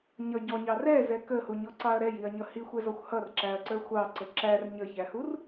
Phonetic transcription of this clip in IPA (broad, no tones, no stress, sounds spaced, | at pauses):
ɲ ʌ ɟ ɔ ɲ ɑ r ɛ z ɛ k ə h u ɲ ɔ ǀ ɑ ɐ̯ ɾ ɛ j i ɐ̯ ɲ ʌ h i xʷ ɛ z ɔ xʷ h ʌ r ǁ æ ɐ̯ ǀ ə˞ xʷ ɑ ǀ ə ǁ æ r ɲ ə ç æ h u r